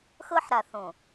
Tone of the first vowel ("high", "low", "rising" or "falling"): high